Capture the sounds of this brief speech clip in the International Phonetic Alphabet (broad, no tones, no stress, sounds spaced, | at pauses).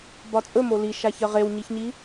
b ɒ t͡sʼ ɵ m o l i ʃ a ç ɜ ʁ e w ɲ i ç ɲ i